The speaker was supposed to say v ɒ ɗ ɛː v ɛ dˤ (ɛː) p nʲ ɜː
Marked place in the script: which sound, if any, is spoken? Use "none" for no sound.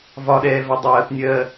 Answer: ɜː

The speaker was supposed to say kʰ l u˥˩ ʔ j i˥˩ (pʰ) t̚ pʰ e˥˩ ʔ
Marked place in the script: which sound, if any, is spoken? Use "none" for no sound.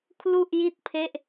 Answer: none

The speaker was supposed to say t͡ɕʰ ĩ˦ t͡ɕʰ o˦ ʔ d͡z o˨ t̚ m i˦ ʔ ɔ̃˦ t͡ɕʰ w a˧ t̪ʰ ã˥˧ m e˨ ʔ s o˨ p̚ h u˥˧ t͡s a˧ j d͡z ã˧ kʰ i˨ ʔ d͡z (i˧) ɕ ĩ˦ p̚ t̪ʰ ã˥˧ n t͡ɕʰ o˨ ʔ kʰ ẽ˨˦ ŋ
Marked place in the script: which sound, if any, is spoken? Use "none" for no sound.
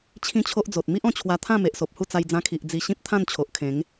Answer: i˧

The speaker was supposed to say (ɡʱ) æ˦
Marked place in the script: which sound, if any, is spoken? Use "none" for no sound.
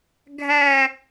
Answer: ɡʱ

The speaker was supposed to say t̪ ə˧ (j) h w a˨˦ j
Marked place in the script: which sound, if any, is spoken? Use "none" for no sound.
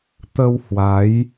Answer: w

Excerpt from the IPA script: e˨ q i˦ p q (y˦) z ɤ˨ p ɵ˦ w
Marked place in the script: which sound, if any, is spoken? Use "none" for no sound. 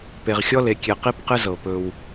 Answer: ɪ˦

